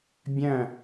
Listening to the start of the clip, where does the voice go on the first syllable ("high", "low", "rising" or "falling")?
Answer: falling